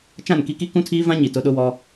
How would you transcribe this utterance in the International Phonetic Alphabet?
t͡ʃ ã˦˨ n k i˦ k i˦ k ũ˦ tʰ iː˦ v ã˦ ɲ i˨ t ʊ˦ ɗ ʊ˦ w ɔ˦

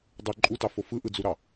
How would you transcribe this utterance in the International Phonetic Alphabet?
dˤ ɯ ǃʼ u t ɑ f o f ɯ ʔ ɯ d͡z u ɾ ɑ

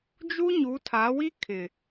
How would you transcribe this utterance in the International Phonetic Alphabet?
d͡ʒ u˦ ɲ u˨˦ tʰ a˨˦ w i˦ kʰ ɪ˨

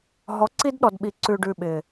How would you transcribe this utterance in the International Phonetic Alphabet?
ɦ ɔ˨˦ ǀ i˦ d ɗ ɔ˨ d ɓ i˨ ǀ ʉ˨ ɖ ʉ˨ ɓ ɪ˨

